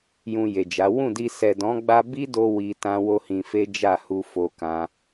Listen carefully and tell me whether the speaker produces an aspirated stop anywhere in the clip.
no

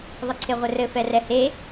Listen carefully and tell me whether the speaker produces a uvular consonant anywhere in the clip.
yes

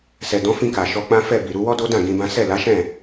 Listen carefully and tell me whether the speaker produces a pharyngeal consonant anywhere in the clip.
no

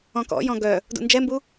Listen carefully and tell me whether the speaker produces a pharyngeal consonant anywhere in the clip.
no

